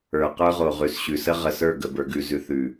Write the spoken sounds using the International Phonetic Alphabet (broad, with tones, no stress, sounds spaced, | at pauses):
ə˞˨ q ə˞˦ ʁ o˨ ʁ ʉ˨ s ɕ ʉ˨ s ə˦ ʁ ə˨ s ə˞˦˨ ɡ ə˨ b ə˞˨ ɡ ʉ˨ z ʉ˨ θ ʉ˨